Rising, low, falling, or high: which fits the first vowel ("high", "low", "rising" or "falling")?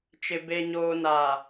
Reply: low